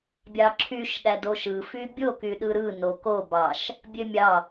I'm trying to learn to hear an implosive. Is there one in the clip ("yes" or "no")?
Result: yes